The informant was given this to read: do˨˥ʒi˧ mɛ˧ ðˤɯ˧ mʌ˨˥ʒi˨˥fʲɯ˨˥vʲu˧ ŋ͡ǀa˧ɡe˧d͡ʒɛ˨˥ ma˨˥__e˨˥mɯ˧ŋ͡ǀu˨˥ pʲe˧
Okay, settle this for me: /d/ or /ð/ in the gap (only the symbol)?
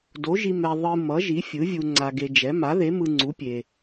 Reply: ð